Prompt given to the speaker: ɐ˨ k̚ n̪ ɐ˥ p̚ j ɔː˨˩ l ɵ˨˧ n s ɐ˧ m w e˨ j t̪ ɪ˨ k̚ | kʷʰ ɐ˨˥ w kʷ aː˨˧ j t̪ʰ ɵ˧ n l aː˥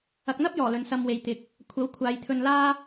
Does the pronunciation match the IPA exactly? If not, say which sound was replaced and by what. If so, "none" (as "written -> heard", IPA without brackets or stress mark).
kʷ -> kʷʰ